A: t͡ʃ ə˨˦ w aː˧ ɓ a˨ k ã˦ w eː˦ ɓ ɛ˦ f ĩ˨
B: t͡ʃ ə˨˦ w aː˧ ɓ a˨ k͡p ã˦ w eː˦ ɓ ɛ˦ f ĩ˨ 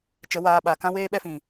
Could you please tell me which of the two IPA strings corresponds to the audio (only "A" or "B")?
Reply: A